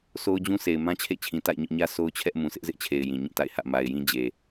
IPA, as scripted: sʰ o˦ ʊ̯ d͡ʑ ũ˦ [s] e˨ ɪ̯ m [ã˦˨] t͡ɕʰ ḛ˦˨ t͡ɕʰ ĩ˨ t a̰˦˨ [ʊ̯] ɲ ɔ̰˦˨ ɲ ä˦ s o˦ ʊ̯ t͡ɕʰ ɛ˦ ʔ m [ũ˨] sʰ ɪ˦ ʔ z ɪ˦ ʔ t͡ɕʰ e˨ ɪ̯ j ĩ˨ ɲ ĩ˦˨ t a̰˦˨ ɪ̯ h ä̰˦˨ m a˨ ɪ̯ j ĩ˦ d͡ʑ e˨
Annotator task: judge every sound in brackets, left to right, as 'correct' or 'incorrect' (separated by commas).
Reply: correct, incorrect, incorrect, correct